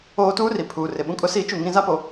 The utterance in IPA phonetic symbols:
oː˦ tuː˦ri˨pʰuː˨rɪ˨ ɓũ˦kʼʊ˦ siː˦t͡ʃu˦˨ŋĩ˦ za˦po˨

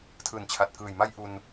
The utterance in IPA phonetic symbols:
tʰɯː˨˩nt͡ɕʰa˨˩t̚kɯː˨˩jma˥˩j ʔu˧n

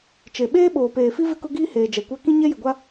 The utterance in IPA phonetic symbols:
t͡ʃe˨ ɓeː˦ɓoː˨peː˨fi˦ vɪ˦kʊ˦ɡiː˦heː˨ d͡ʒɛ˨kʷa˦ kĩ˦ɲɛ˦jɪ˨ɡʷa˦

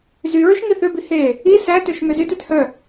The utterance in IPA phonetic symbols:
zy ɹyʃŋiθøbi he | i sætøʃ ŋøzytet hœ

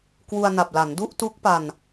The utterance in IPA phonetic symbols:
kwu˧a̯na˨˩p̚ la˩˦ndu˥˩ʔtu˦˥k̚ pa˧n

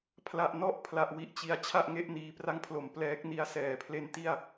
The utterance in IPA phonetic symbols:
pʰla˨˩ʔnɔ˦˥ʔ pʰla˨˩ʔwi˨˩ʔt͡ɕi˩˦a̯ t͡ɕʰa˥˩ʔŋe˦˥ʔ niː˨˩pra˦˥ŋpʰlo˩˦m plɛː˦˥k̚ ni˦˥a̯ sɛː˩˦pʰle˦˥nti˥˩a̯

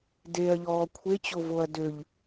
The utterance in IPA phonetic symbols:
deɐ̯ʎɔː kʷʰet͡ɕovoɐ̯ døʎ

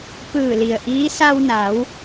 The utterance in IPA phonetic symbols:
pɯː˧˩li˩ə̯ʔiː˧˥ sa˧wna˩˧w

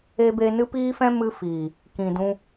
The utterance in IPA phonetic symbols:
e˧be˧ nɨ˦piː˦fɛ̃˦ mɨ˦fiː˨ | kĩ˨dũ˧

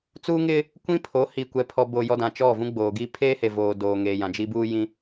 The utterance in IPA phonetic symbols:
t͡suː˦ŋɪ˦ | kʷĩ˦pʰo˨˦hi˨ kʷɛ˨pʰɔ˨bo˨ jɔ˦dã˨ t͡ʃɔ˦˨vũ˦ɡ͡boː˨ɡi˦ pʰeː˦he˨voː˨ doː˨ŋeː˨jã˨d͡ʒi˦ buː˦jĩ˦

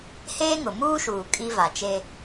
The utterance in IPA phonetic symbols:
heː˦ŋʊ˨ muː˦ʃuː˨ kʼi˦va˨t͡ʃe˦

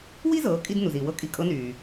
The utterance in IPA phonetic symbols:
wi˥zɤː˩˧kʼi˧d nu˩ziː˩wɤ˥kʼi˧˥ kʼɤ˧˥nyː˩

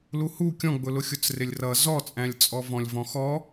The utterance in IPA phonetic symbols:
luhu kʲɔ̃ɡ͡bʊlʊxʲʊt͡s rɪlʲrʌ zɔt͡sʼæ̃lʲt͡sʼɔvɔ̃lʲ vɔ̃xɔ

